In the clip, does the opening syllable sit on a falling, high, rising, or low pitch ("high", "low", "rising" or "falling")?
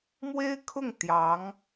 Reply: high